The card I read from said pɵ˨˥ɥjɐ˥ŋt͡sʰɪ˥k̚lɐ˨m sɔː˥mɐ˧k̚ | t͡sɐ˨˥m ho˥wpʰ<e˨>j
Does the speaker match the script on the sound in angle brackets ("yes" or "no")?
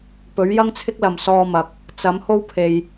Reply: yes